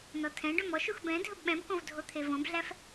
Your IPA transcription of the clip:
nɔtʰɛ̃ɖɵm ɔʃux bɛ̃ dʱɵbɓɛ̃bkõv dʱot̪ʰevõbɮæf

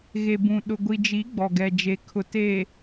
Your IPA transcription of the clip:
ɣe˨bũ˨ɗʊ˨ ɡʷi˨d͡ʒi˨˦ ɡ͡bɔ˨ɡɛ˨d͡ʒe˨ kʰʊ˨teː˨

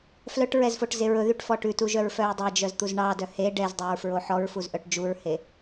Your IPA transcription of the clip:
flœʈɹɛzfoʈze ɹɵðyʈfɔ ʈʉtuʒœɹfœɹ dˤɛd͡ʒœzt̪uz ɳɑdœ he ɖɛzdˤeɹfɹo ħɔɹfuzʔœʈ d͡ʒuɹhe

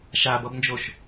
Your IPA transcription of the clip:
ʃabʌbnd͡ʒoʃ

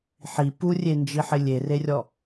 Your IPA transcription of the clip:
ħi purʲend͡ʒiħɪ lʲererʲɔ

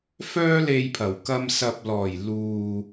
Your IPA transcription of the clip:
fœː˥le˧jpʰɐ˨˩wkɐ˧m sɐ˨p̚lɔː˨˩j luː˨

